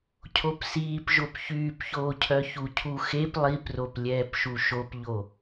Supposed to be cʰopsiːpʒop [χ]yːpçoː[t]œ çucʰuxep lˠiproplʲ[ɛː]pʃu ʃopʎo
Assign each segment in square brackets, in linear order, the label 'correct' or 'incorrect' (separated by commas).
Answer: incorrect, incorrect, correct